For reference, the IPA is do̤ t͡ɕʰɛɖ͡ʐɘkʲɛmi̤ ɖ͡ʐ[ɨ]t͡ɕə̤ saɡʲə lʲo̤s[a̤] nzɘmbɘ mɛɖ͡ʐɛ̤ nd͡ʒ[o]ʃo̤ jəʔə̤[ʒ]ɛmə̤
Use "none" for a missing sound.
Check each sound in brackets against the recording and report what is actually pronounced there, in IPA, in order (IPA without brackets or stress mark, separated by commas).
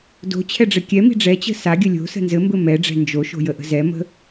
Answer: ɛ, ə̤, o, z